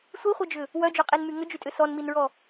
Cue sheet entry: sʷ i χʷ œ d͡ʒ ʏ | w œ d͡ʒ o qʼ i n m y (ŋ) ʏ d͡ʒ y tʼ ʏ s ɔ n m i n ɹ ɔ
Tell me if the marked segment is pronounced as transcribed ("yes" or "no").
yes